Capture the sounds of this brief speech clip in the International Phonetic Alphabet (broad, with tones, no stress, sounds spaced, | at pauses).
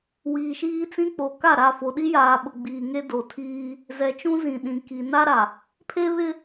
w iː˨ ʃ iː˦ t͡s ĩ˦ k͡p o˨ k a˦˨ ɾ a˦˨ f o˨ ɗ i˦ j aː˨ ɓ ʊ˨ ɡ͡b iː˨ ŋ e˦ d o˨ tʰ iː˦ | z ɛ˨ t͡ʃ ũ˦ z ĩ˨ ɗ ĩ˨ k i˨ n a˦ ɾ a˨ | pʰ e˦ β ɪ˦